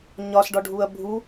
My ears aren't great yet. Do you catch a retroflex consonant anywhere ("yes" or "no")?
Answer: yes